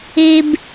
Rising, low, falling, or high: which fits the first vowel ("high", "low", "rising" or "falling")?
high